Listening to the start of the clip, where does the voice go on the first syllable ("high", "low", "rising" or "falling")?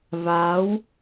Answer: rising